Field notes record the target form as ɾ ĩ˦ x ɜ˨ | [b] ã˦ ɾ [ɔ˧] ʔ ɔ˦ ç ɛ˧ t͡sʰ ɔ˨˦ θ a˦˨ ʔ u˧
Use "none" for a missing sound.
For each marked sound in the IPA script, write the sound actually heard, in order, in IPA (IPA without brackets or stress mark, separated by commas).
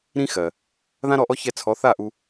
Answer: ð, ɔ˧